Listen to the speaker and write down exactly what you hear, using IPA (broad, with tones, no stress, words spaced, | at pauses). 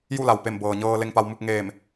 ju˥˨la˩wpe˧˩m bɤː˩ɲɤː˧ le˧ŋpa˧wmu˥˨k̚ ŋeː˧˩m